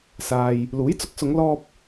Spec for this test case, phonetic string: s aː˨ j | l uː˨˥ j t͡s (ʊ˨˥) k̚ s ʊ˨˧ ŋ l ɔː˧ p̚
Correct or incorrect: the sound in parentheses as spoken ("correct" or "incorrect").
correct